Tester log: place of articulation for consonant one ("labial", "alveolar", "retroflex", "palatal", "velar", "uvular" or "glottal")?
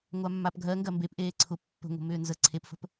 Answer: velar